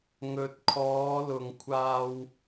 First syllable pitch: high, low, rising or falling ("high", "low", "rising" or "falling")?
low